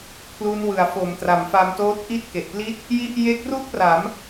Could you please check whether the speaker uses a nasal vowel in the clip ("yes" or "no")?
no